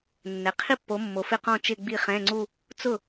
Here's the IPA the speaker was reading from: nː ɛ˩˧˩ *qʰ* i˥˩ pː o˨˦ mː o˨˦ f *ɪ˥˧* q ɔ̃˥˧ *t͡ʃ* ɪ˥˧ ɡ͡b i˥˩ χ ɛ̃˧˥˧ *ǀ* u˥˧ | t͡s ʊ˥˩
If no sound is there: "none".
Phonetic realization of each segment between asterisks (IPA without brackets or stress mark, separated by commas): qʰ, ɪ˥˧, t͡ʃ, ŋ͡ǀ